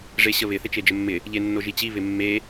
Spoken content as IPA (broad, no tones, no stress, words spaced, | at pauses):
ʐeɕəβɪ θɪt͡ʃed͡ʒəmːɪ | ʎenːoʒit͡ɕi βɪmːe